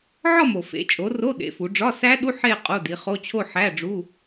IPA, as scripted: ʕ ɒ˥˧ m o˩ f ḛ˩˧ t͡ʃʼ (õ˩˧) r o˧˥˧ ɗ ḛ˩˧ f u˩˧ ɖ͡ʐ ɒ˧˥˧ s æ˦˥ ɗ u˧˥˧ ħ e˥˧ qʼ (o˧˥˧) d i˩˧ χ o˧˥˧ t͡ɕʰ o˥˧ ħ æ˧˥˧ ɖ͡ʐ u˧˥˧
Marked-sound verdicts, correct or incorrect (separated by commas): incorrect, correct